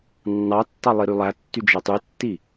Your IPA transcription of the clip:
nː ɑ tː ɑ lˠ i ɾ y lˠ æ tː y d͡ʒ æ tˤ y tː i

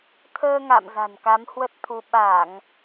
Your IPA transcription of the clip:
t̪ʰ əː˧ ŋ a̰˧˨ m z a̤˨˩ n k a˨˦ m h w ə˦˥ t̚ t̪ʰ u˧ ɓ a˧˩˨ ŋ

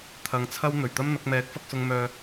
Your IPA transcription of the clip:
t̪ʰ ɐ˧ ŋ t͡sʰ ɐ˥ w n̪ ɵ˨˩ ɥ t̪ ɐ˥ m n̪ ɐ˨˥ k̚ m ɛː˨˥ k̚ f ɐ˧ k̚ s ʊ˧ ŋ m œː˧

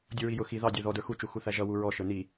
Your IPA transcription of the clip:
dʲ u ɹ i j ʊ x i ð ɑ dʲ ə˞ ð ɔ d ə˞ x u t͡ʃ u x u θ æ ʒ ʌ w u ɹ ɔ ʃ ə˞ n i

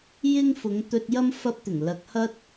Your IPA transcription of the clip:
j ɪ˥ ŋ f ʊ˨˧ ŋ t̪ ɵ˧ t̚ j ɐ˥ m f ɐ˧ p̚ t̪ ɪ˨˩ ŋ l ɐ˨ k̚ h ɐ˥ t̚

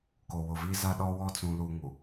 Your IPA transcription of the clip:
k o˨ w ʊ˨ v iː˦ z a˦ ɗ ɔ˦ w ɔ˦ t͡s ũ˦ l u˦ ŋ u˨

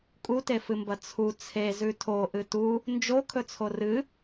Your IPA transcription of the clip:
kʼ u t e f ɨ m b ɐ t͡sʰ u t͡sʰ e z ʉ tʰ o ʔ ɨ t u | n d͡ʒ o kʰ ɵ t͡sʰ o r ɨ

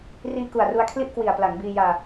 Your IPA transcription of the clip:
r iː˧ k u˨˩ a̯ r u˧ a̯ kʰ l i˥˩ ʔ k w i˨˩ a̯ p l a˩˦ ŋ b iː˧ j aː˧

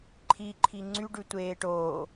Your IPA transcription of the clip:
ǃʰ i ǃʰ i ŋ͡ǀ y ɖ ʉ tʷ eː ʈ oː

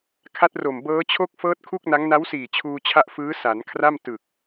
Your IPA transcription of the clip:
kʰ a˦˥ t̚ r o˨˩ m b ɤː˦˥ t͡ɕʰ o˥˩ k̚ f ɤː˦˥ t̚ kʰ u˥˩ k̚ n a˦˥ ŋ n a˦˥ w s iː˨˩ t͡ɕʰ uː˧ t͡ɕʰ a˦˥ ʔ f ɯː˦˥ s a˩˦ n kʰ r a˥˩ m t ɯ˨˩ k̚

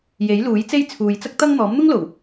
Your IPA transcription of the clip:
j e˨˥ j l uː˨˥ j t͡s e˥ j t͡sʰ uː˧ j t͡s ɐ˥ k̚ t̪ ɐ˥ ŋ n̪ ɔː˨˥ m n̪ ʊ˥ ŋ l o˨˩ w

